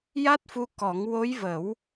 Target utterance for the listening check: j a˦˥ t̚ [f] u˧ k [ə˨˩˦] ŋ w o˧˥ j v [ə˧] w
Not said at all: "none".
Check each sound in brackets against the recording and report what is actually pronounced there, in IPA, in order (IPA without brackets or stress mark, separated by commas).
f, ɔ˨˩˦, ə˨˩˦